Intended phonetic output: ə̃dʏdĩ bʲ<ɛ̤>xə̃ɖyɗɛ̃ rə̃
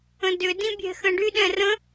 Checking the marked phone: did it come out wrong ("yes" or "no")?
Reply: no